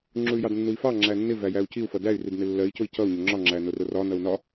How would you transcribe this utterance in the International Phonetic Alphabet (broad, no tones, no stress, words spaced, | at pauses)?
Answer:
ŋ͡ǁuy̯jɑdnːui̯fɑ ŋ͡ǁænːɪ væjæu̯ciu̯ fʌdæy̯ ridnɪlːɜi̯ cʊi̯cʌu̯ ɲʊŋ͡ǁɒ ŋ͡ǁænʊrʊrɒ nʌu̯nɒ